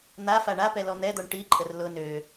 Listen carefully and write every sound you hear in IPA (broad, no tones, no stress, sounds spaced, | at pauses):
n̪ a f a ɳ a p ɛ l ɔ n̪ ɛ d̪ ɔ ɳ ʈ i ǃʼ ə r l ʊ n ø